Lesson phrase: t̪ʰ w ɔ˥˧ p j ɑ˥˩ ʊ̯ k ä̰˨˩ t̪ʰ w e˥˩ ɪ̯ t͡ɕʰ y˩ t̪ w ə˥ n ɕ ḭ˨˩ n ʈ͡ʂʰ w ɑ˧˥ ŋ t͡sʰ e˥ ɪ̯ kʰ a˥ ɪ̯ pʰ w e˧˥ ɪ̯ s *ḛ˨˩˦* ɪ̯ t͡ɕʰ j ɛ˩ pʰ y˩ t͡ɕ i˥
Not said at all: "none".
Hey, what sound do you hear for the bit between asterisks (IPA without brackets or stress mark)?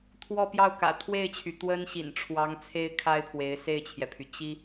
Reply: e˥˩